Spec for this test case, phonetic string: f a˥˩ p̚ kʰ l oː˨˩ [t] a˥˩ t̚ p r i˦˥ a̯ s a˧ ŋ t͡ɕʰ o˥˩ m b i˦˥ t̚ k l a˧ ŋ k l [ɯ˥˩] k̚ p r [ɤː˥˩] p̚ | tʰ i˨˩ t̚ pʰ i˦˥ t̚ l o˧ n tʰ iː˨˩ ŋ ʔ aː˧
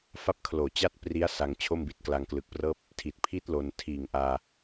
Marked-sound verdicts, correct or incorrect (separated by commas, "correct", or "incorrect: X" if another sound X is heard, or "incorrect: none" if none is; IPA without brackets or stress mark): incorrect: t͡ɕ, incorrect: ɯ˨˩, correct